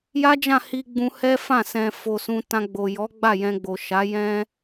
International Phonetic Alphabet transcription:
j a˦ d͡ʒ ã˦˨ h i˧ ɡ͡b ũ˧ h ɛ˦ f ã˦˨ s ɛ̃˨ f o˨ s ũ˧ t ã˧ ɡ͡b o˨ j ɔ˨˦ ɡ͡b a˦˨ j ɛ̃˧ ɡ͡b o˨ ʃ a˨˦ j ɛ̃˦

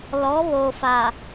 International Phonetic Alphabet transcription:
l ɔ˨˦ β o˨ f a˨

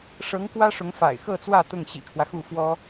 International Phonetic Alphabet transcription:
ʂ ɤ˧˥ ŋ k w ä˥ ʂ ʊ˧˥ ŋ f a̰˨˩ ɪ̯ x ɤ˥˧ t͡s w ä˥˧ t̪ ʊ˥˩ ŋ ɕ ḭ˨˩ kʰ w ä˦ x u˥˩ f w ɔ˥

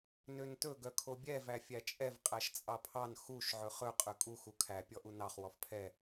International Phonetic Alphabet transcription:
n ø n t ɵ ɡ œ kʰ o bʲ ɛ v æ fʲ æ t͡ʃʼ ɛ v qʼ æ ʃ t͡sʼ ɑ pʰ ɑ n x u ʃ ʕ ɵ χ ɵ qʼ ø kʼ u x u kʰ æ pʲ ɔ ʔ u n ɑ χ w ɔ f pʰ ɛ

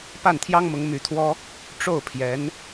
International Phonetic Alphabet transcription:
p a˥˩ n t̪ʰ j ɑ˥ ŋ m ʊ˧˥ ŋ m y˧˥ t̪ʰ w ɔ˥ | ʈ͡ʂ o˥˩ ʊ̯ pʰ j ɛ˧˥ n

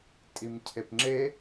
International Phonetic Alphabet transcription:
tʼ i m cʰ e p ŋ͡ǁ e

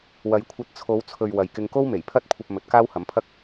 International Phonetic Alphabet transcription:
w ɐ˨˧ j kʷʰ ɐ˧ t̚ t͡sʰ o˨˧ w t͡sʰ ɵ˨ ɥ w ɐ˨ j k ɪ˧ ŋ k o˥ w m e˨˩ j pʰ ɐ˥ t̚ kʷʰ ɐ˧ p̚ m ɵ˨˥ t̚ k aː˥ w h ɐ˨˥ m pʰ ɐ˥ k̚

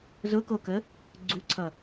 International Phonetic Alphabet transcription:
z ʊ k o k ə | ɡ͡ǀ u ǀʰ ʌ

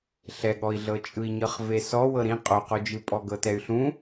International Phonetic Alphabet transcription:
ɬ ɛ ɠ ɔ i̯ ɮ ɤ t͡ʃʼ ɯ i̯ ɲ ɤ χ v e s ɔ w ɤ ɾ ĩ qʼ o q o d͡ʒ ɯ pʼ ɔ ɡ ɤ t ɛ y̯ ɬ ũ

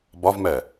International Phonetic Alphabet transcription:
b ɒ v m ɛ

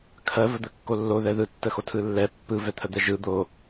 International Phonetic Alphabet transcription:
kʰ ɜ v ə d̪ ə kː o lː o ð ɛ ð ɯ tː ə x o tʰ ɯ lː ɛ pː ɯ v ɛ t̪ʰ ə d̪ ɛ ʒ ɯ d̪ o

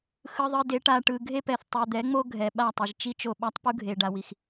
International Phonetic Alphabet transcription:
x ɯ˧ ðˤ ɯ˧ d e˨˦ ʈ a˨ ʈ ɯ˨ ɡʱ e˦ p ɛ˨ θ tˤ ɯ˨ d̪ ɛ˨˦ ŋ͡m o˦ ɡʱ ɛ˨ ɓ a˦˨ tˤ i˨ ʒ t͡ʃ i˦ t͡ʃ o˦˨ ɓ a˦ tˤ p u˦ ɡʱ e˨ ɖ a˨ w i˨ x

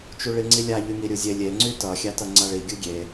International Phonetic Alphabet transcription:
t͡ʃ u ɭ i ŋ͡ǀ i lʲ a ʎ y ŋ i ɾʲ u zʲ e lʲ e ŋ͡ǀ y t ʌ xʲ a t ʌ ŋ͡ǀ a ɭ i ɡʲ u ɡʲ e

